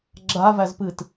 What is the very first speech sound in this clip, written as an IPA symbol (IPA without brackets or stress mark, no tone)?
ɡ͡ǁ